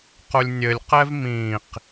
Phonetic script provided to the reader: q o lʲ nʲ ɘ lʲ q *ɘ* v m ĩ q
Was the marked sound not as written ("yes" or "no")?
yes